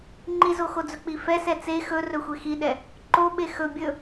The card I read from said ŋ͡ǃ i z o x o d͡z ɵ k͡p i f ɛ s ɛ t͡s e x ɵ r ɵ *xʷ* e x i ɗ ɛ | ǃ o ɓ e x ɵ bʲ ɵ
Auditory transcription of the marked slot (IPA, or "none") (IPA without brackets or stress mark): xʷ